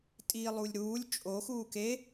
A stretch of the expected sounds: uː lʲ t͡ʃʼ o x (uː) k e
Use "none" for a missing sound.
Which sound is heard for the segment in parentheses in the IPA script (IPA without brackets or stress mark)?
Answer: uː